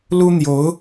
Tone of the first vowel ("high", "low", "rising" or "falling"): high